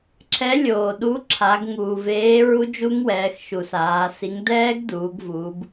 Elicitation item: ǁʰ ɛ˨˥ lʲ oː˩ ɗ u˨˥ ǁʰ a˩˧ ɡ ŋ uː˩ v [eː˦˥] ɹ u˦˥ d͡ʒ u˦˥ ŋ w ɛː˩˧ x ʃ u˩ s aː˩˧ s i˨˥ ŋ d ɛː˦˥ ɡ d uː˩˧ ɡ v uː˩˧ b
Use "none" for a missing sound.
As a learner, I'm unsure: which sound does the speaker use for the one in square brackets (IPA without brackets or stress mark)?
eː˨˥